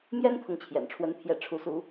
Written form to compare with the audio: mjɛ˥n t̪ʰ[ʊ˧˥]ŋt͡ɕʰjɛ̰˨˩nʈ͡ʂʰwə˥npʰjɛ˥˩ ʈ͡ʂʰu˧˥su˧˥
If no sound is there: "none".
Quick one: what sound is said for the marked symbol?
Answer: ʊ˥˩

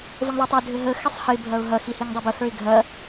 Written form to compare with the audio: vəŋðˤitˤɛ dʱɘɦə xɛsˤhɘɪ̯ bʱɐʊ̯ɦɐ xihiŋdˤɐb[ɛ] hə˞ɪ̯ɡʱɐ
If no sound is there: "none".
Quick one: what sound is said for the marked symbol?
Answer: ə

